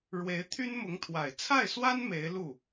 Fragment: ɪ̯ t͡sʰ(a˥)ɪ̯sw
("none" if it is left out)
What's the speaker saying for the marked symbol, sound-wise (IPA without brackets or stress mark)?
a˥˩